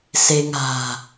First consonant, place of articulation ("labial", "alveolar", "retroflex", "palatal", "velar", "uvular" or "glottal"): alveolar